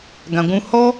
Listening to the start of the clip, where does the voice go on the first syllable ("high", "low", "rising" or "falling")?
low